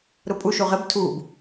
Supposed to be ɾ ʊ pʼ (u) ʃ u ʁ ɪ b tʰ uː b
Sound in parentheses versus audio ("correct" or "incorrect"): correct